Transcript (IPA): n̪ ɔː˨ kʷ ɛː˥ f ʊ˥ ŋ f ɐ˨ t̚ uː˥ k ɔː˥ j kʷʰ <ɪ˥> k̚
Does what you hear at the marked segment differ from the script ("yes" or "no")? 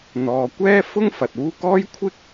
no